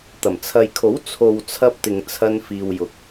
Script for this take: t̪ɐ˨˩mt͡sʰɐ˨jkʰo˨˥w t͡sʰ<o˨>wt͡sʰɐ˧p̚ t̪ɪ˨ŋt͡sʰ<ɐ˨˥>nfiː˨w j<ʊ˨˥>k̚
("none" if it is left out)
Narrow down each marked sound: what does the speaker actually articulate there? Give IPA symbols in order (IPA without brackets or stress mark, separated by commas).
o˨, ɐ˧, ʊ˨